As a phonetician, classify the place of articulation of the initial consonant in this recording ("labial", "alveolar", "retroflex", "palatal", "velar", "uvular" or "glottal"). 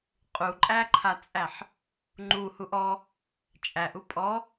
uvular